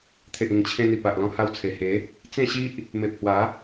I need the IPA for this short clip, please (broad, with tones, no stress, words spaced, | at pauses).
t̪ʰe˨ʔĩ˨˩ŋt͡ɕʰẽ˧n̪i˨˩ pa˨ʔlɔ̃˧ha˧wt͡sʰe˨˩ he˨˦ | t͡sẽ˥˧ɕi˦ʔ | me˨p̚hwa˨˦